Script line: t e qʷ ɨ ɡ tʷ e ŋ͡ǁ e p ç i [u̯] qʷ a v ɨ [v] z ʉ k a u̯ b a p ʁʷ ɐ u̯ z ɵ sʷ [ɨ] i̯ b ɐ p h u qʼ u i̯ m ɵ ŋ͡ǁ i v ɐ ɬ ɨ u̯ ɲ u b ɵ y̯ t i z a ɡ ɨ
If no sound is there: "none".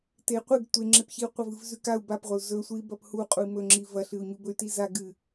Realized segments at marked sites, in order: u̯, v, ɨ

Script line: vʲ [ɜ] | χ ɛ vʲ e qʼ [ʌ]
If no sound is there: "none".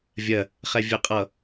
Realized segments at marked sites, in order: ɜ, ʌ

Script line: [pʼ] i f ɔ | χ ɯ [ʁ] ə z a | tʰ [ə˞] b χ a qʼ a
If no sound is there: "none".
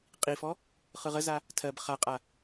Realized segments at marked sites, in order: qʼ, ʁ, ɜ

